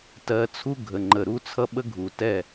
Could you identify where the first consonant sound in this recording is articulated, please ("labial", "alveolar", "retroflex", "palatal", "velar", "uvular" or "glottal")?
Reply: alveolar